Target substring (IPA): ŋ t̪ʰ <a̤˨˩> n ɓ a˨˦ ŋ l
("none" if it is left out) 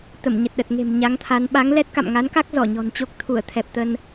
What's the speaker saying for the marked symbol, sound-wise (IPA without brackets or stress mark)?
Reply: a˨˦